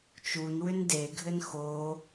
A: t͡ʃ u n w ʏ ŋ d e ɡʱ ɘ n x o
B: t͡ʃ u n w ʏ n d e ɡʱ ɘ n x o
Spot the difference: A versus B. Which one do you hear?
B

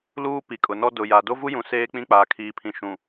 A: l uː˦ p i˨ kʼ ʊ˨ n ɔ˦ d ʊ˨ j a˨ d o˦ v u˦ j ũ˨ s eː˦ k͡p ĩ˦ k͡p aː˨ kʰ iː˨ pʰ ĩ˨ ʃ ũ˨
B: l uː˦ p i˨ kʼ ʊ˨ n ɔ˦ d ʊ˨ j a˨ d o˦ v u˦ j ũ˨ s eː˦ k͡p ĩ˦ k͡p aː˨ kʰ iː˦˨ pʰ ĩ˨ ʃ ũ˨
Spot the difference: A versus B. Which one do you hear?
A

